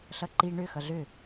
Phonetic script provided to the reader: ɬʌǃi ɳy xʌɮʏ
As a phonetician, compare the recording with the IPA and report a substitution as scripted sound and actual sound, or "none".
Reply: y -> ʏ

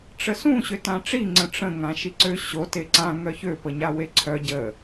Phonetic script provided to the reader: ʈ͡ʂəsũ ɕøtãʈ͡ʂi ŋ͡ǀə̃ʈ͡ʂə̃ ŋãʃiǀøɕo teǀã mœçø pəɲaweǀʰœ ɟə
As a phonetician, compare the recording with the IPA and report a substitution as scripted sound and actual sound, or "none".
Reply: m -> ŋ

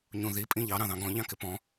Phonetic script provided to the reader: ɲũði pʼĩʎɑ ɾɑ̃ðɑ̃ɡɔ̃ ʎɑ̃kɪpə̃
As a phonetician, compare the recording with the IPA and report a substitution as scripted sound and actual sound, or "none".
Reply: ə̃ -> ɔ̃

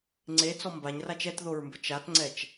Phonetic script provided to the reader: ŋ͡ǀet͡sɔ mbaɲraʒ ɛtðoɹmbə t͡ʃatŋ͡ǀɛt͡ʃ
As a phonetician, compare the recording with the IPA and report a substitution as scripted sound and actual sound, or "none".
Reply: ʒ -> t͡ʃ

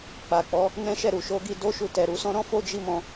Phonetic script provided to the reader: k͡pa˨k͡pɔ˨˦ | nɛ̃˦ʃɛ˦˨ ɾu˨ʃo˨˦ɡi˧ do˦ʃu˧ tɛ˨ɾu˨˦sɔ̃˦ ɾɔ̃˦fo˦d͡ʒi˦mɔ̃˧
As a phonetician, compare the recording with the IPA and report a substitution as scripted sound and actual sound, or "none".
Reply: none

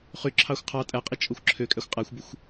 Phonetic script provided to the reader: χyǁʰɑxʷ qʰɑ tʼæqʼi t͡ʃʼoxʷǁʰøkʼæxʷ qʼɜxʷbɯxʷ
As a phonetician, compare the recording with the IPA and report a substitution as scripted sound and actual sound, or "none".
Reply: ɜ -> æ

